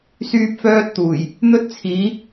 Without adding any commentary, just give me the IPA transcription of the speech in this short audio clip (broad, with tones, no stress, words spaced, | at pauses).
syː˥p̚fœː˥t̚t̪uː˨˩j | n̪ɵ˥t̚t͡sʰiː˨˥